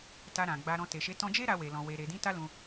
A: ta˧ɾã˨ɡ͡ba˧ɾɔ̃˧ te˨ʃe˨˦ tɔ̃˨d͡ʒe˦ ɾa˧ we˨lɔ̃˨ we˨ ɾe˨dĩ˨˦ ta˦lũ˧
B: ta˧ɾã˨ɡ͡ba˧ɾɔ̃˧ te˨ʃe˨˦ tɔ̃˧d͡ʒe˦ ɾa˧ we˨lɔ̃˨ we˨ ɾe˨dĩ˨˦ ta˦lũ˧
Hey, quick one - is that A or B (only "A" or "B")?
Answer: B